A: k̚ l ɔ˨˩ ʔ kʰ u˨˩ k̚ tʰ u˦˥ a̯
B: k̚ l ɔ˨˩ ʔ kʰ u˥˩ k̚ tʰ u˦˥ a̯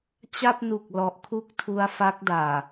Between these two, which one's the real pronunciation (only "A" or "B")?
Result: B